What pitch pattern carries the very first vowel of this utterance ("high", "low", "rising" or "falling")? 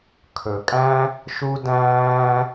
low